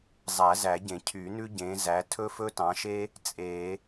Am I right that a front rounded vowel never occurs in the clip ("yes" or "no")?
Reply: no